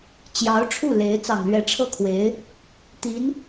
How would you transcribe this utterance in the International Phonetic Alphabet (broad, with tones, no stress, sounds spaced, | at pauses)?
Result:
t͡ɕ j ɑ˧˥ ʊ̯ ʈ͡ʂʰ u˥˩ l e˧˥ ɪ̯ t͡s ɑ˨˩ ŋ l ɥ ɛ˧˥ ʈ͡ʂʰ ɤ˥˩ kʰ w e˧˥ ɪ̯ | t̪ i˧˥ n